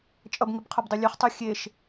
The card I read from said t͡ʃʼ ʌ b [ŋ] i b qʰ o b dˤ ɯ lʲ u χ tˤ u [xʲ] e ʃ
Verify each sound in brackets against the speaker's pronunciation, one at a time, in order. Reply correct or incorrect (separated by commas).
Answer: correct, correct